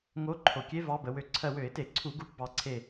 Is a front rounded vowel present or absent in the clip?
present